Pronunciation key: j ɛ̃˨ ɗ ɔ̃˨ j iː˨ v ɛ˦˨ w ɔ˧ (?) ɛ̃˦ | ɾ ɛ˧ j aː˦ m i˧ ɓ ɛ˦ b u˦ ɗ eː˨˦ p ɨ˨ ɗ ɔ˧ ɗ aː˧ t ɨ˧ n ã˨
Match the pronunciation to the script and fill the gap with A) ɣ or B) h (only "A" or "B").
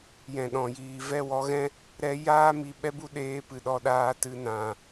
A